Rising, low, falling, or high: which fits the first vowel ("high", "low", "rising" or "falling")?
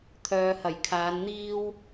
low